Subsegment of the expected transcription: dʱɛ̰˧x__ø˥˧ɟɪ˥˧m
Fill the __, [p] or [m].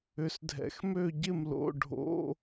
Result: m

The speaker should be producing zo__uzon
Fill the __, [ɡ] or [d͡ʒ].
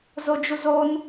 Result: d͡ʒ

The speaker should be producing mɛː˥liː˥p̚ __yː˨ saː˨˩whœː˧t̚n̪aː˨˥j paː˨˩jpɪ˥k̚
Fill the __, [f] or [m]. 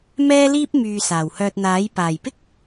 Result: m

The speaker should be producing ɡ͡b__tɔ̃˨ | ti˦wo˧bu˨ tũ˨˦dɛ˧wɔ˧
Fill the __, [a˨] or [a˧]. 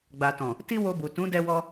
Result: a˨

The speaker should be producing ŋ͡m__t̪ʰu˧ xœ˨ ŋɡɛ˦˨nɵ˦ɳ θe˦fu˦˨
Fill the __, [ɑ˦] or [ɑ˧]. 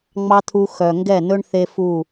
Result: ɑ˦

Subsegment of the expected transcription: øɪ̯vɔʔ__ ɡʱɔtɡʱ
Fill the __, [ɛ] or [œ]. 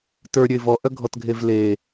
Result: œ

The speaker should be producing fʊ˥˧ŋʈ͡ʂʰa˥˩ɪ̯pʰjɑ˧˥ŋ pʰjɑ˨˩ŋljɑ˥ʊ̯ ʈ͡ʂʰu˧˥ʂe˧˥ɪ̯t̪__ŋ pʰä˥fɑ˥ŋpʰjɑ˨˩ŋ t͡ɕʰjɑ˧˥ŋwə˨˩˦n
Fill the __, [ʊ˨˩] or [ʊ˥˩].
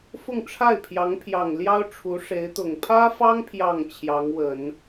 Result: ʊ˨˩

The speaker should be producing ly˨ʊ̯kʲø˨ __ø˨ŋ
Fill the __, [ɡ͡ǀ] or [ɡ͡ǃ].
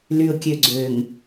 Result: ɡ͡ǀ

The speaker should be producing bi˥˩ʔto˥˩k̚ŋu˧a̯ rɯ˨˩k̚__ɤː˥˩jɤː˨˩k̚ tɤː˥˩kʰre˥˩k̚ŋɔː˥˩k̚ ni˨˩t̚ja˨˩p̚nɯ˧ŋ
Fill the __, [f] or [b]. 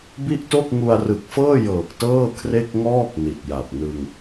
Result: f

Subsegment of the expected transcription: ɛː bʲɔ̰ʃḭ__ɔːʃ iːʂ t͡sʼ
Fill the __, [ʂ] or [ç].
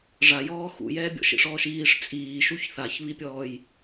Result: ʂ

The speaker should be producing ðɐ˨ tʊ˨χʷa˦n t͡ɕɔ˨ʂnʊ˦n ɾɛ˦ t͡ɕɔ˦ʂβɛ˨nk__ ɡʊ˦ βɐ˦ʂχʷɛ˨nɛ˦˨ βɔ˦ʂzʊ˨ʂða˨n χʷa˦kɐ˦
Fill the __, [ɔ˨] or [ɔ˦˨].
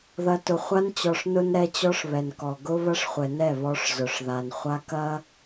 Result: ɔ˨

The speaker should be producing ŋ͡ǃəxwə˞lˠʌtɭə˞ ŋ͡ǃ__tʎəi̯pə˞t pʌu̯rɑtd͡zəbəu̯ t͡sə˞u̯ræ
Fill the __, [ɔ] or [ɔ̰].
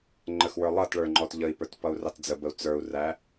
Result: ɔ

